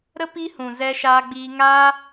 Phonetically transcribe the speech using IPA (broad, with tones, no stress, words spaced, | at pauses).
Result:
ɾə˦ pi˦ hũ˨zɛ˧ʃaː˧ɡ͡biː˧ ŋaː˦